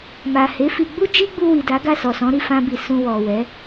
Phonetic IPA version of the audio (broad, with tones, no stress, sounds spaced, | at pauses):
m a˨ h e˨˦ f i˧ ɡ͡b u˦ d͡ʒ i˦ ɡ͡b u˧ w i˨ d a˨˦ ɡ a˦˨ s ɔ˨ s ɔ̃˨˦ ɾ i˦˨ f ã˧ b i˨ s ũ˧ w ɔ˨ w ɛ˨˦